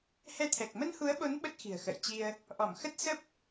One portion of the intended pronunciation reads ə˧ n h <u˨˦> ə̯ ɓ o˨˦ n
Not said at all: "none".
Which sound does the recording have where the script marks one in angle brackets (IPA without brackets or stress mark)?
u˨˦